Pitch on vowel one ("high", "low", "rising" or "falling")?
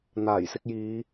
low